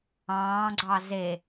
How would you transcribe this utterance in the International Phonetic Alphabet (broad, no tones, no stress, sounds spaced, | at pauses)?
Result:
ɑ̃ː ɡ͡ǀ ɑ z e